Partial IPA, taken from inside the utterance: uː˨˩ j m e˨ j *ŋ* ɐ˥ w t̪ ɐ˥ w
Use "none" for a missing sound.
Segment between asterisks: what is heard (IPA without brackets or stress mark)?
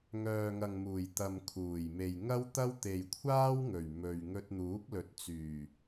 ŋ